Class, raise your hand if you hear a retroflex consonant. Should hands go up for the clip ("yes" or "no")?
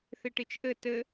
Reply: yes